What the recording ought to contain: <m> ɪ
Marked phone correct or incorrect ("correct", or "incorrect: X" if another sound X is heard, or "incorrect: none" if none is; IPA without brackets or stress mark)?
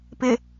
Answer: incorrect: p